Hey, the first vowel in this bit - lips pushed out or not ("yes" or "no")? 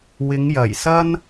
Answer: no